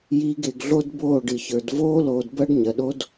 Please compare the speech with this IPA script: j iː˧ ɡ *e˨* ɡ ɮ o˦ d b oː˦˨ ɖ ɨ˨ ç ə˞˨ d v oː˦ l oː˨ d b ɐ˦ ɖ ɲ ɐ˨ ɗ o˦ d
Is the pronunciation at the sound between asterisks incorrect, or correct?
correct